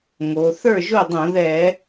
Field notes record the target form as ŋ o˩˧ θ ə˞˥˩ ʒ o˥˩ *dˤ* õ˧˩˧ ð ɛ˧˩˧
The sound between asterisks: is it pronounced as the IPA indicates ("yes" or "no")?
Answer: yes